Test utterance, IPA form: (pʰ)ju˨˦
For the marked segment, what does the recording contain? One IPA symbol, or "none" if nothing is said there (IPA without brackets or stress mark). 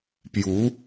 p